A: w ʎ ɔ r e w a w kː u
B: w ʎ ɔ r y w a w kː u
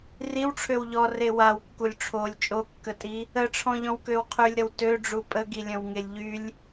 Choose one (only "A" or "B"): A